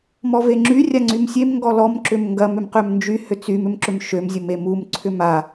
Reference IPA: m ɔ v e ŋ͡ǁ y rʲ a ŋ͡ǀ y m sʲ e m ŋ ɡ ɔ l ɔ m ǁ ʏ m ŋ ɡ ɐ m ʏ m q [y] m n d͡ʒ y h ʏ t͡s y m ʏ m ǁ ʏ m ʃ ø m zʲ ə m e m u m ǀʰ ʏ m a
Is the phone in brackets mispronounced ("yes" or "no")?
yes